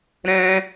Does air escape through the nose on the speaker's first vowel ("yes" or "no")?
yes